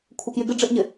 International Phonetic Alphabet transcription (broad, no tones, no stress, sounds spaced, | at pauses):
kʷʰ ɪ k j ɪ ɡ ɪ ɖ͡ʐ ɪ ʔ ɲ ɪ